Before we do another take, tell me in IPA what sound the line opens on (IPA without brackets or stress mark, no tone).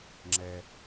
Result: ŋ͡ǁ